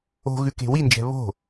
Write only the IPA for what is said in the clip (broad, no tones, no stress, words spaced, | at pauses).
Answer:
o̤ ɣʉke̤wind͡ʒɛ̤ βo̤